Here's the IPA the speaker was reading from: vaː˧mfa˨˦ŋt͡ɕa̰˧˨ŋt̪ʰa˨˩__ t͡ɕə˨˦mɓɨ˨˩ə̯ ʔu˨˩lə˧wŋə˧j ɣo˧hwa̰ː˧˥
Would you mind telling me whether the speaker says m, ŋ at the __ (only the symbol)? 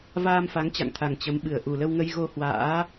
ŋ